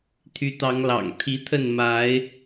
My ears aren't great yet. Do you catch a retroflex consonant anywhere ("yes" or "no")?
no